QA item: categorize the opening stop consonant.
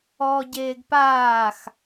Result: plain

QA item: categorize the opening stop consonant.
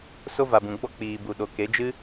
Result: plain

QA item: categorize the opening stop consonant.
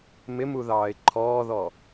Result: click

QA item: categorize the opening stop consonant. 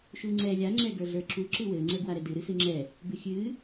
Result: click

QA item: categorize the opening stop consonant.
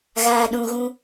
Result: implosive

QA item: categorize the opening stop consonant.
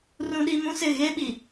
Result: implosive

